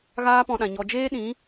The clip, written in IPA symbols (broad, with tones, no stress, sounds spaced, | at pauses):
ɣ aː˦ p ɔ̃˧ ɗ ã˨ ɲ ɔ˨ d͡ʒ eː˦ ɗ ĩ˨˦